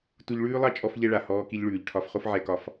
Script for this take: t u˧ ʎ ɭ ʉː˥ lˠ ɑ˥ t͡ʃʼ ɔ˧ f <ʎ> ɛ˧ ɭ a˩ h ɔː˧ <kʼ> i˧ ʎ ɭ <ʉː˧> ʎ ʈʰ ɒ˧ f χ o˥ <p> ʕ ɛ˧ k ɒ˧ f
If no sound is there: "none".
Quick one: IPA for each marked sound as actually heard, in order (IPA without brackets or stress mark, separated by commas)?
ʎ, k, ʉː˩, f